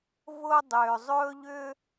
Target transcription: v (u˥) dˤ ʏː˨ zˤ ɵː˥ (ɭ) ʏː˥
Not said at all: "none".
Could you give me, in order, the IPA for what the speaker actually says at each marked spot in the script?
ʊ˥, ʎ

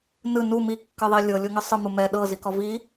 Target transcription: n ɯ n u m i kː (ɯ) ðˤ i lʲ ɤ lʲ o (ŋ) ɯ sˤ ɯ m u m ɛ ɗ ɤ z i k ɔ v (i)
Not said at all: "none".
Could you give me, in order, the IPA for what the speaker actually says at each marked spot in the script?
ɯ, ŋ, i

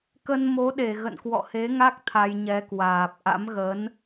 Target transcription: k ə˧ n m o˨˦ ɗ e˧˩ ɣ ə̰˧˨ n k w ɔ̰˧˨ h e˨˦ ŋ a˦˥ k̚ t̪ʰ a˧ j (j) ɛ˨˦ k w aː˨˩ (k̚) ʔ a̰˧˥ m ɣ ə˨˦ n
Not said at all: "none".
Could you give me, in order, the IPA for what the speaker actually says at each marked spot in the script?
ɲ, p̚

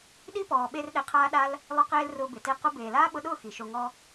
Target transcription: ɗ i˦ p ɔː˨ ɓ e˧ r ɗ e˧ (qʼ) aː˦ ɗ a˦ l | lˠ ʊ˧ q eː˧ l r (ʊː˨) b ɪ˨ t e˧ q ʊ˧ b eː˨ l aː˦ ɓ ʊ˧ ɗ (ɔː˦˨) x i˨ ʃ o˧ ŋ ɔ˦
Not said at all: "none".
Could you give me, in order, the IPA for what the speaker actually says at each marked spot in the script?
qʰ, ʊː˧, ʊː˦˨

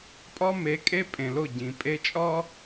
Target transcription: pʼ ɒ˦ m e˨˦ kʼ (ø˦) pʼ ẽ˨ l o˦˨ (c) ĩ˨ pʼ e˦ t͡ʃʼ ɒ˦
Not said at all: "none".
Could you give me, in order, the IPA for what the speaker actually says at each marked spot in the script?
e˦, ɟ

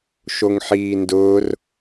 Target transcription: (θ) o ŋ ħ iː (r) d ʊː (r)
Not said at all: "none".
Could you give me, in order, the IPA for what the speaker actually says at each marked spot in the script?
ʃ, n, r

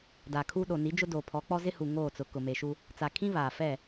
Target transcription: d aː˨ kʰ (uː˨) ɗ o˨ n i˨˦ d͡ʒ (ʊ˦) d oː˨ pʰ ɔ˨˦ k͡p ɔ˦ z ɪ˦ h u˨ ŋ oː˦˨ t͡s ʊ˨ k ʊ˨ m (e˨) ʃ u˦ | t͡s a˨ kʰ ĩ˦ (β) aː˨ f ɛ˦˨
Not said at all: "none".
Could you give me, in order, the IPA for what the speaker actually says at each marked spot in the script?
uː˦, ʊ˦, e˨, β

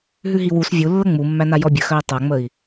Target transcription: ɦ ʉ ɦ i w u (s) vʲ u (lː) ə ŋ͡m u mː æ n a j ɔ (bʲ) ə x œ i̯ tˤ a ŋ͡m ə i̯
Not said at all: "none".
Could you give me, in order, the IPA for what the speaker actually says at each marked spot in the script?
s, lː, bʲ

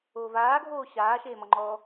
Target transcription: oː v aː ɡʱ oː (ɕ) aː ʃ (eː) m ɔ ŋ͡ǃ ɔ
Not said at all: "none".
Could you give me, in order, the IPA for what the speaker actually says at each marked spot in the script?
ɕ, eː

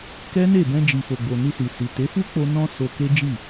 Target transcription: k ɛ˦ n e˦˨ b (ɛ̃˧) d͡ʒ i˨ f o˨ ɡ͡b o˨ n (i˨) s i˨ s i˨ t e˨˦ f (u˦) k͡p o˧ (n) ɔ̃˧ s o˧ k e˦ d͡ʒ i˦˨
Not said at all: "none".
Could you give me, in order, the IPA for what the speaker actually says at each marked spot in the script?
ɛ̃˧, i˧, u˦, n

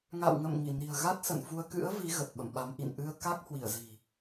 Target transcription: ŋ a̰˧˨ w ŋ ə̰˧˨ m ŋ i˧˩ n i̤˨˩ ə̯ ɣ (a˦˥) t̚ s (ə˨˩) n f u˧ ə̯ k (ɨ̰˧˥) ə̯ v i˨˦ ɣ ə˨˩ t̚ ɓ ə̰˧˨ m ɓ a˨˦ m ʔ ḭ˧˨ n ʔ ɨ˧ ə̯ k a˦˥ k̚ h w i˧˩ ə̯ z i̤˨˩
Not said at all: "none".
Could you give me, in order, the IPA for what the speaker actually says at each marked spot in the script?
a˦˥, ə̰˧˨, ɨ̰˧˥

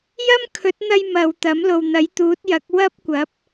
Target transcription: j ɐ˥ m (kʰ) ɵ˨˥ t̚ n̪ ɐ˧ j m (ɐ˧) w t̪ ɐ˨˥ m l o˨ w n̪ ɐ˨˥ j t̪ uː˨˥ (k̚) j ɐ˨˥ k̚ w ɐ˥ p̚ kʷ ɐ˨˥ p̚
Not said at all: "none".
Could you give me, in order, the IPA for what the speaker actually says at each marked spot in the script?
kʰ, ɐ˨˧, t̚

